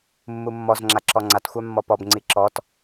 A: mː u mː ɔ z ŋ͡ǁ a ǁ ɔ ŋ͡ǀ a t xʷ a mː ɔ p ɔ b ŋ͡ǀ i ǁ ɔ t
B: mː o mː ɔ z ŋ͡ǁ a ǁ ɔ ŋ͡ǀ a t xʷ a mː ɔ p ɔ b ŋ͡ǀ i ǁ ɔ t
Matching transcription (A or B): A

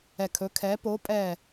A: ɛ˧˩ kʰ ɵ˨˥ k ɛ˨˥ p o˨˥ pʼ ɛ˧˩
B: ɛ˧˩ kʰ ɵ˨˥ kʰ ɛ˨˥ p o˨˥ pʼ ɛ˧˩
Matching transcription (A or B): B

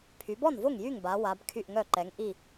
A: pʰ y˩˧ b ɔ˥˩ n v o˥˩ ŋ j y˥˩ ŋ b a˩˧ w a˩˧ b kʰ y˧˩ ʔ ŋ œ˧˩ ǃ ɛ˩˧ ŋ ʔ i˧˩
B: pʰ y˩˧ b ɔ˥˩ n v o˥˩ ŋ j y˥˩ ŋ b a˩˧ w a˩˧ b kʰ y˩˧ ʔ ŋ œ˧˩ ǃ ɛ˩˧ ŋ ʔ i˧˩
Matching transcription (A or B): A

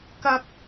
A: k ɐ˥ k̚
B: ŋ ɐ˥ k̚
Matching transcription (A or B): A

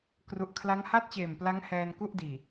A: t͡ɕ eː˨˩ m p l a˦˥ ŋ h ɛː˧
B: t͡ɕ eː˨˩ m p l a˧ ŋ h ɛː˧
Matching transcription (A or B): A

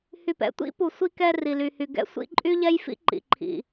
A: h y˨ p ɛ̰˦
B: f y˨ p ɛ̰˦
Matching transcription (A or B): A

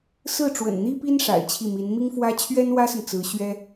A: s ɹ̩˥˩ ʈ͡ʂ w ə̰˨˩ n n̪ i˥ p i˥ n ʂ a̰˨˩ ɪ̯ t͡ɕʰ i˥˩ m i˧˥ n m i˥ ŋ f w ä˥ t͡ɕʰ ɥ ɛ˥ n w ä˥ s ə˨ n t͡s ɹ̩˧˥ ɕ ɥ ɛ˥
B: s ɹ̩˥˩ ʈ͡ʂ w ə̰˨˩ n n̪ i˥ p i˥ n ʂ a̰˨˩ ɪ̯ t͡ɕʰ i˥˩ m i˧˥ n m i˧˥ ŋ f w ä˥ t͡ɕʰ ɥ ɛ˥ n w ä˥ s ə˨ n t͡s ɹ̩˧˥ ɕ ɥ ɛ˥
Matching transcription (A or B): A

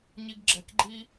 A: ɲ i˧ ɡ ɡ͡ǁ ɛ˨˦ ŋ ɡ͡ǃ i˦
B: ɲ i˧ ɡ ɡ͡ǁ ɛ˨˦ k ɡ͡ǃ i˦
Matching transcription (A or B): B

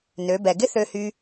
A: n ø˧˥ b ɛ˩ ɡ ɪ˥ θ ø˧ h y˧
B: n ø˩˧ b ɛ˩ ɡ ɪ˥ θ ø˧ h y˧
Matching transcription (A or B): B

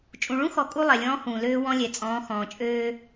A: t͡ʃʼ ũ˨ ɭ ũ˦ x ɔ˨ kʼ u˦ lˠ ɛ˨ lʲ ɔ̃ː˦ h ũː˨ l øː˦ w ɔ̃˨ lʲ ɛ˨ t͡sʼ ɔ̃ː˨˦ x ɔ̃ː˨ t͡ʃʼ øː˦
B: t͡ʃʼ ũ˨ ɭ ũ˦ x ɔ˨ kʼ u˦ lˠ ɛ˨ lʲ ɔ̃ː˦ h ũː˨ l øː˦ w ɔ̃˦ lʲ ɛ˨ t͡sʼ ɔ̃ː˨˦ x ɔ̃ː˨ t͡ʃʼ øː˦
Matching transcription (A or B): B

